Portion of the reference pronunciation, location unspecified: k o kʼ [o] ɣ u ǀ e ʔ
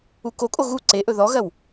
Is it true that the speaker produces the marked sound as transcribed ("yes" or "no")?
yes